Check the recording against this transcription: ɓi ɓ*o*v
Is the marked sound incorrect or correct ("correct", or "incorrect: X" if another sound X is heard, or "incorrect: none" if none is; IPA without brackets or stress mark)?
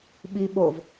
correct